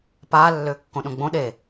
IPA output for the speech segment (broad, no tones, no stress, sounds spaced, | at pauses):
p aː lː ʏː kː õ ɗ õ ɡ͡b õ ɗ e